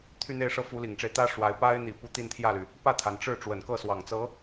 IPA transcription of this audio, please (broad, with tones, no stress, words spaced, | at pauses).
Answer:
t̪ʰy˥˧n̪e˥˧ɪ̯ʂɤ˥˩ fu˧˥li˨˩ŋʈ͡ʂe˦ɪ̯t̪ä˥ ʂwa˧˥ɪ̯ pa˥ɪ̯ n̪i˨˩ pu˥˧ t̪i˥˧nt̪ʰjä˥˩ly˩ | pä˥˩t̪ʰa˩nʈ͡ʂɻ̩˥˩ ʈ͡ʂwə˨˩nkɤ˥˩swɑ˨˩ŋ t͡sɤ˧˥